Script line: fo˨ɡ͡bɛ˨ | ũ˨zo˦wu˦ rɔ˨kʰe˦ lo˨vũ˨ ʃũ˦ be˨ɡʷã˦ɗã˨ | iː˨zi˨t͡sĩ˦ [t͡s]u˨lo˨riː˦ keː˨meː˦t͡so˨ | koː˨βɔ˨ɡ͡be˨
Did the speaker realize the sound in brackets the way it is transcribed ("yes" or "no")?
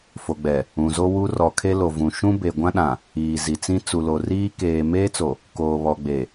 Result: yes